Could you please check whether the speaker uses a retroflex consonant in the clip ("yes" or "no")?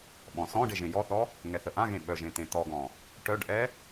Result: yes